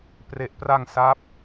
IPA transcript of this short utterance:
p r e˨˩ ʔ p r a˧ ŋ s a˦˥ p̚

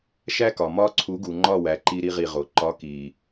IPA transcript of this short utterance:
ʃ æ˦ k ɒ˨ m ɒ˦ ǀʰ u˨˦ ɡ u˨ ŋ͡ǃ ɒ˦˨ w æ˨ ǃ i˦ ɾ i˦ ʁ i˦˨ ʁ o˨ ǃ ɒ˨˦ k i˨

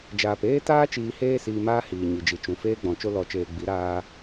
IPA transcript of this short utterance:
d͡ʒ aː˨ p eː˦ t aː˦ t͡ʃ iː˧ h eː˦ s iː˧ m aː˧ h iː˨ ɲ i˨ d͡ʒ i˨ t͡ʃ ũ˨ f eː˧ ɡ͡b ɔ̃˨ t͡ʃ o˧ l ɔ˨ t͡ʃ eː˨ ɡ͡b i˨˦ ɾ aː˧

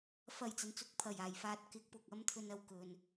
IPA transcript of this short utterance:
f ɐ˨˩ j t͡s ɐ˨ n t͡s ʊ˨˥ k̚ pʰ ɐ˨˩ j aː˨˩ j f aː˨˥ t̚ k ɪ˨˥ k̚ p ʊ˨ k̚ ɐ˥ m t̪ʰ ɵ˧ n ɐ˨ w k ɵ˨ n

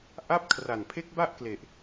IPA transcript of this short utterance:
ʔ a˦˥ p̚ kʰ r a˨˩ n pʰ e˦˥ k̚ b a˥˩ ʔ k l e˨˩ ʔ

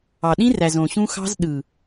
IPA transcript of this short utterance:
ɑ˨ ɗ ĩ˦ r æ˨ z õ˨ ɕ ũ˦ x ɑ̤˦ z ɗ ɯ˨

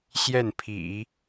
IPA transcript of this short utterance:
ɕ j ɛ˥˩ n pʰ ḭ˨˩˦

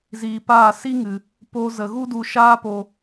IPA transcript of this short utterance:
z iː˨ p aː˦˨ s i˦ ŋ ɨ˨ | p o˧ z ə˨ ɣ u˦ d u˧ ʃ aː˦ p o˧

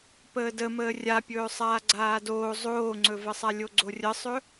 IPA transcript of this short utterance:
p əː d ə m əː rʲ a pʲ ɵː sˤ aː ɡ͡ǀ aː d oː zˤ oː ŋ͡ǀ ɵ v ə sˤ a lʲ o ɡ͡ǀ o rʲ ə sˤ ɵ

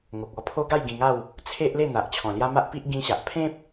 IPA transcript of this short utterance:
ŋ o˨ k̚ ɔ˧ pʰ o˦ ɡ a˥˧ j ɡ ĩ˧ ŋ a˥˧ w | t͡sʰ e˦ ʔ l e˥˧ n̪ a˨ ʔ t͡ɕʰ ɔ̃˨˩ l j a˦ m a˦ ʔ p i˦ ʔ ɡ ĩ˦ ɕ a˨ ʔ pʰ ẽ˦ p̚

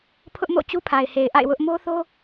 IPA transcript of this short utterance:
pʰ ʊ˦ ʔ m o̰˦˨ t͡ɕ u˦ pʰ a˨ ɪ̯ h e˨ ɪ̯ ʔ a̰˦˨ ɪ̯ w ʊ˦ ʔ m o˦ θ o˦

